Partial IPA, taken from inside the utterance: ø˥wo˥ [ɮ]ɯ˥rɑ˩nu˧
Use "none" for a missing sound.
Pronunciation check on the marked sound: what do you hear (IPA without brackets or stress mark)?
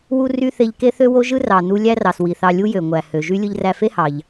ʒ